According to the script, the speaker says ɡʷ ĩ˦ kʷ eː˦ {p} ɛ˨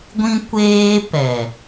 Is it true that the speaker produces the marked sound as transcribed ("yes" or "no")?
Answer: yes